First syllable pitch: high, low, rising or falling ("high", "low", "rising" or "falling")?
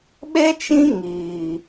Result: high